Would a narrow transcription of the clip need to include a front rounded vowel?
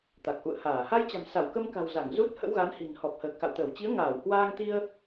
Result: no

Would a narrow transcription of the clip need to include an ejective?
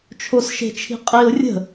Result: yes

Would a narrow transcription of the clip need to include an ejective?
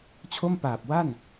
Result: no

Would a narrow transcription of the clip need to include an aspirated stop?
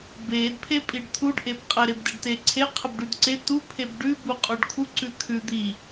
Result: yes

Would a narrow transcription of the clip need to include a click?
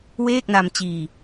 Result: no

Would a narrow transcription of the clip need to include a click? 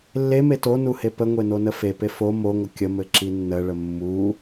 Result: yes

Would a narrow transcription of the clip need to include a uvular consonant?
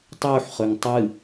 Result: yes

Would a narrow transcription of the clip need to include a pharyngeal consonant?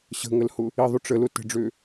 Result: no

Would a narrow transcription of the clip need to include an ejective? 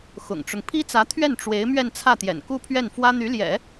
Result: no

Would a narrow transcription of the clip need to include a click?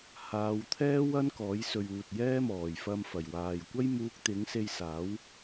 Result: no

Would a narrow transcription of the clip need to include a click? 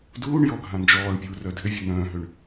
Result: no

